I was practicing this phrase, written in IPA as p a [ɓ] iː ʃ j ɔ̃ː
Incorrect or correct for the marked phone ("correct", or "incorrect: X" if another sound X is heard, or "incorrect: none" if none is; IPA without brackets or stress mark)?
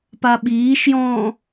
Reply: correct